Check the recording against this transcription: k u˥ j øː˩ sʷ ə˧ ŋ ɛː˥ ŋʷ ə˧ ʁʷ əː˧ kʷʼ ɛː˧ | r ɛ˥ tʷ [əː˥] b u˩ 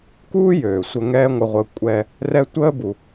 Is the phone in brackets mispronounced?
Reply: no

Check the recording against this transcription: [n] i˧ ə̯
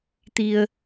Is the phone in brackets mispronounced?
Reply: yes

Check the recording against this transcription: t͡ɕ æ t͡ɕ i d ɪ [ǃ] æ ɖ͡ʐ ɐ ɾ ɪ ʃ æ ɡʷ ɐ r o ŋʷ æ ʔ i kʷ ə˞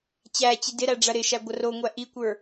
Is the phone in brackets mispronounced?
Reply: yes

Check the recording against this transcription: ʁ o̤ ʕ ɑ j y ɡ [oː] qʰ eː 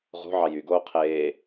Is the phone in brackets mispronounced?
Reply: no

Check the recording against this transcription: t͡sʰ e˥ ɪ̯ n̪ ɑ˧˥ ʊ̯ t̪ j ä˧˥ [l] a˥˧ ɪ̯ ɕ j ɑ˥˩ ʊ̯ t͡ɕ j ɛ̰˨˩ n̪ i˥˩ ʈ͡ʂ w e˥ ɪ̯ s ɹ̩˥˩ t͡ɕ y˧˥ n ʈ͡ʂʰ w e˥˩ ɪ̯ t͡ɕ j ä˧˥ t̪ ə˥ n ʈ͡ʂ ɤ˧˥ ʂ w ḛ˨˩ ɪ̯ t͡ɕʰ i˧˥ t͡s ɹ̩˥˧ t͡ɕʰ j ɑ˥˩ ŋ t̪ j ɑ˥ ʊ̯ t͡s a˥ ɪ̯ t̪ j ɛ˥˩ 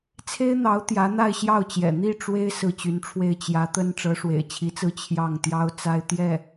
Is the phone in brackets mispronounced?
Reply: yes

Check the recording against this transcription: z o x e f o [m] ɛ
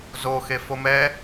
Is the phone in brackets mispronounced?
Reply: no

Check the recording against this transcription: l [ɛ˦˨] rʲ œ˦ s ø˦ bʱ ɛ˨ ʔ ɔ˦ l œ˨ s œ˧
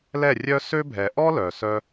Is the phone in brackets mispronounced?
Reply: no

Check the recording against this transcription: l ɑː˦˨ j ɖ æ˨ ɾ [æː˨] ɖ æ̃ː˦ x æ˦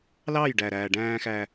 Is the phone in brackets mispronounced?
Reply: no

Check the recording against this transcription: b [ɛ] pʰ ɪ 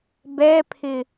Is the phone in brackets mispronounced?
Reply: no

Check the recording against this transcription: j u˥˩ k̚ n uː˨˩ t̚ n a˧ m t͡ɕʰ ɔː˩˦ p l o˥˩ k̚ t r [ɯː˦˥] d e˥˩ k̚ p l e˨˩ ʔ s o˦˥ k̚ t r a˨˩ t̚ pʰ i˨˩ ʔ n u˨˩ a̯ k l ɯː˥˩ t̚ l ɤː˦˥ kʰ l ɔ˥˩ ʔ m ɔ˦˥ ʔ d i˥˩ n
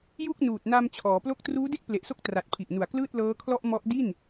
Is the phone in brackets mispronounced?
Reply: yes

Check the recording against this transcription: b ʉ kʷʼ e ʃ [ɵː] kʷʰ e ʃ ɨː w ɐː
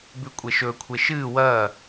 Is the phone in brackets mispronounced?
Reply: no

